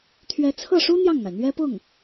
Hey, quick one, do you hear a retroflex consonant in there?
yes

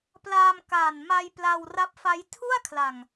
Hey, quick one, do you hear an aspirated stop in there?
yes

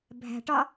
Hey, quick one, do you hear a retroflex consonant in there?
yes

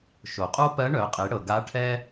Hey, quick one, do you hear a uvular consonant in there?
yes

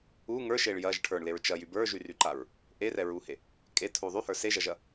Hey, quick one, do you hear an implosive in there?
no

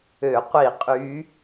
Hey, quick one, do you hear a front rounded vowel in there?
yes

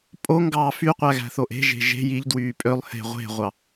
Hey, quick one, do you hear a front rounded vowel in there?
yes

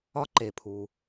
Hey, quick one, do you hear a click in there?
yes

